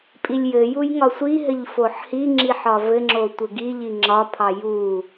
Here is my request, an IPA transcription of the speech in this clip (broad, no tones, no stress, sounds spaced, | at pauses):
pʼ i lʲ j ɘ j u j ŋ ɒ sʷ i ɦ ɘ ʎ f o ħ h i ŋ͡ǁ i ħ ɒ v ɘ ŋ͡ǁ o tʷ ɘ ɡ i ʎ i ŋ͡ǁ ɒ pʰ ɑ j u